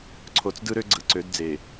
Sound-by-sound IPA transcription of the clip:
ǀʰo˨t͡sdɯ˦ɾø˦ ɡ͡ǀɯ˨ǀø˨˦d d͡ze˨

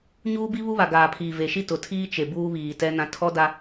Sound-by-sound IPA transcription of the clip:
ɲuː˦bi˦ βu˦βa˨ ɡaː˨pʰiː˨ve˨ʃi˦ tʊ˨tʰiː˦ t͡ʃe˨buː˦βiː˨tɛ˦ nã˦ tʰɔ˦da˦

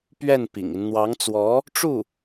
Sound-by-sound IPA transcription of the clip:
pɥɛ˥˩n pḭ˨˩ŋi˦n n̪wɑ˧˥ŋt͡swɔ˧˥ | ʈ͡ʂu˥˩

